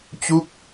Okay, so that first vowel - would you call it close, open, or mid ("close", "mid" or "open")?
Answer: close